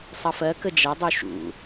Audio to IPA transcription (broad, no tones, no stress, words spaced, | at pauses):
sˤʌfɜkə d͡ʒʌdˤu ʃṵ